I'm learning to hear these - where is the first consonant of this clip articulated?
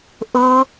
throat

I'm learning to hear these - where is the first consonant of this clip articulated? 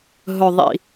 throat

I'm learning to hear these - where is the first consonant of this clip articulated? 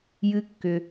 palate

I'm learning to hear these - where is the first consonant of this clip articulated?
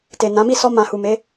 tongue tip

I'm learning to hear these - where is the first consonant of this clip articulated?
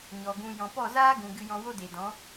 palate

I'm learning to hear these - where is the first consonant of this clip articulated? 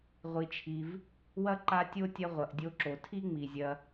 uvula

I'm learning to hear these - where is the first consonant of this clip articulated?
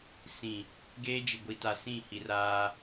tongue tip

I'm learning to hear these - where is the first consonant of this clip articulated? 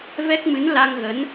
lips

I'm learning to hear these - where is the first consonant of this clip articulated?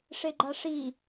retroflex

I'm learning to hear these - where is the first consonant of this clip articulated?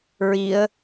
tongue tip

